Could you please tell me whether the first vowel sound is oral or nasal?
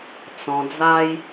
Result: nasal